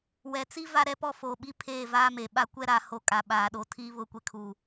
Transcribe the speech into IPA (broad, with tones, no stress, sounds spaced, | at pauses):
w ɛ˨ t͡s i˦ v a˦ ɾ ɛ˦ p ɔ˦ f o˨ ɓ i˦ pʰ eː˦˨ v aː˦ m e˨ ɓ a˦ kʷ ɛ˦ ɾ aː˨ h o˨ kʼ a˨ ɓ aː˨˦ ɗ o˨ tʰ iː˦ β ʊ˦˨ kʷ e˦ kʰ u˨